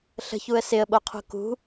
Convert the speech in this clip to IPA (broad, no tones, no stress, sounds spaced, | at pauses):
ɬ ə̤ ç u ə̯ s ɪ ə̯ ɓ o qʰ ṳ k ṳ